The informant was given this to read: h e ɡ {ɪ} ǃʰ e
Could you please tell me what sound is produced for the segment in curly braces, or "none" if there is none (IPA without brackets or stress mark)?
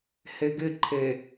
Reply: ɪ